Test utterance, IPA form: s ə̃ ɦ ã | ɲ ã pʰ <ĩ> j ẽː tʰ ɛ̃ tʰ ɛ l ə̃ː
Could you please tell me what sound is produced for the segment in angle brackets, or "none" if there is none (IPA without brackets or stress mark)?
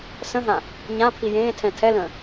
i